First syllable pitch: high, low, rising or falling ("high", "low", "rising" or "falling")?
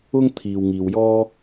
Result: high